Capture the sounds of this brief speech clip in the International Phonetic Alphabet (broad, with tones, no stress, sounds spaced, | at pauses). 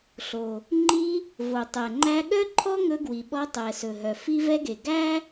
ɬ o˩ | ŋ͡ǃ i˧ | v o˩ tˤ ɛ˩ ŋ͡ǃ æ˧ ɠ œ˥ ǃʰ ɔ˥ ŋ ɵ˧ ɡ w i˩ ɓ ɔ˧ tˤ ɛ˩ s ɵ˩ ɦ œ˩ f i˧ v ɛ˧ ɡ e˩ ɡ æ˥